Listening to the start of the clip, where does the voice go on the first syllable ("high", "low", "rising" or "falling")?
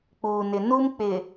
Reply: low